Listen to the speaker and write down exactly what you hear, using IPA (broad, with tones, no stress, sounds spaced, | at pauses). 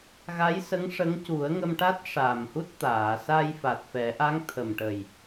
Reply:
ɣ a˧˥ j s ə˧˥ ŋ ʂ ə˧˥ ŋ c u˨˩˦ ə̯ ŋ ə˧ m ʈ a˦˥ t̚ ʂ a˨˩ m h u˦˥ t̚ t̪ aː˨˩˨ s a˧ j f a˨˩ t̚ f ɛ˨˩˦ ʔ a˧˥ ŋ t̪ʰ ə˨˩ m ʈ ə˨˩ j